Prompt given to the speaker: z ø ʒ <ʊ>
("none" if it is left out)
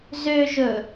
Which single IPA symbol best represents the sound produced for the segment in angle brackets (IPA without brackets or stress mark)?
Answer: ɵ